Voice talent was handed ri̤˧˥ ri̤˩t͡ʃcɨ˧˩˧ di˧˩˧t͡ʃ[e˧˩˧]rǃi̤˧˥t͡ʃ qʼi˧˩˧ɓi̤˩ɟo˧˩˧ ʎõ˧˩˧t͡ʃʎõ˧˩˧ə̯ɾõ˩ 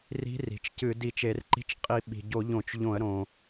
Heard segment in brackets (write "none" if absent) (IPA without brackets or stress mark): e˧˩˧